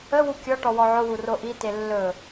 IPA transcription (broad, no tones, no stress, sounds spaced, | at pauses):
ə w u kʲ ɔ ʈ ɔ w ɔ ʕ ʊ w u r o ʔ i t e lː ɵ